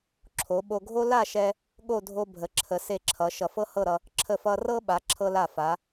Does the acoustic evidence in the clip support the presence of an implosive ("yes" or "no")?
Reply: yes